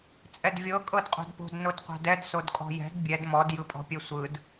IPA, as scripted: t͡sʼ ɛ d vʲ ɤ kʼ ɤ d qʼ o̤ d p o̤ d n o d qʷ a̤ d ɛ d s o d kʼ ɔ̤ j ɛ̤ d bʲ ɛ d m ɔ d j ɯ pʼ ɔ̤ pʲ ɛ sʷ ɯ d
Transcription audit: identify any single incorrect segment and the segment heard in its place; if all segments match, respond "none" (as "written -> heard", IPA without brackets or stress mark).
none